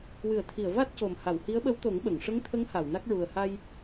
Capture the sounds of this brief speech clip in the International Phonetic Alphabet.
w ɨ˨˩˨ ə̯ t̪ʰ i˨˩˨ ə̯ v a˦˥ t̚ c o˨˩ m h a˨˩˨ w h i˧˥ ə̯ ɓ ə˧˥ w t̪ o˨˩˦ ŋ ɓ ə˨˩˨ ŋ ʂ ə˧˥ ŋ t̪ʰ ə˧˥ ŋ h a˨˩˨ w n a˦˥ k̚ ɹ u˨˩ ə̯ h a˧ j

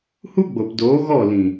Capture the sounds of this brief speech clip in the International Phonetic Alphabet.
h u˦ ɡ͡b o˨ p d oː˨˦ ɣ ɔ˦˨ l ĩ˨

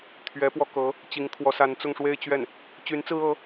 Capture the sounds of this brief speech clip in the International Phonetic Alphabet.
t̪ʰ ɥ ɛ˧˥ p w ɔ˧ k ɤ˧˥ | t͡ɕ i˧˥ ŋ t̪ʰ w ɔ˧˥ s a˧˥ n t͡s ʊ˥˧ ŋ ʂ w e˥˧ ɪ̯ t͡ɕ ɥ ɛ˥˩ n | t͡ɕ y˧˥ n t͡s ɹ̩˥ ɤ˧˥

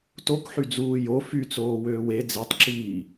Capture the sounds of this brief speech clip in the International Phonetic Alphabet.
t o k ħ y d͡z uː j o f y t͡s oː w øː w e d͡z e tˤ ǁ iː

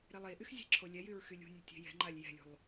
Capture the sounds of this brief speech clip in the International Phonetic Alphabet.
ɾ e lˠ e ʔ y x zʲ ɛ̤ ǁʰ o lʲ ɛ j y ɹ x y lʲ ṳ nʲ e tʲ e̤ j ɛ̤ ŋ͡ǃ a lʲ j ɛ̤ lʲ ṳ lˠ

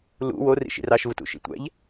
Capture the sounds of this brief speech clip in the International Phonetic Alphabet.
l ṵ w o r ḭ ʃ ḭ r ɑ ʃ v ɯ t ṵ ʃ ḭ tʷ æ̰ ʎ

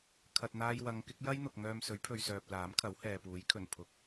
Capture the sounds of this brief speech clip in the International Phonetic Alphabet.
kʰ ɐ˨ t̚ n̪ aː˧ j w ɐ˨˧ ŋ k ɪ˨˥ k̚ j ɐ˥ j n̪ ʊ˨ k̚ ŋ œː˧ m s ɵ˨˥ ɥ pʰ ɵ˨ ɥ s œː˨ p̚ l aː˨˥ m kʰ ɐ˨˥ w h ɛː˨ p uː˨˥ j kʰ ɵ˨˩ n pʰ ʊ˨˥ k̚

